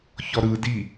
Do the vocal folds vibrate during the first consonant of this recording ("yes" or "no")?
no